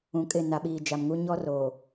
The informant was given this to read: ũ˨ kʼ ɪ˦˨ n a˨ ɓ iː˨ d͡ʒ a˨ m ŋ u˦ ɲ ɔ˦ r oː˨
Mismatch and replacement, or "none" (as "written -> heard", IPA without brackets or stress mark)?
none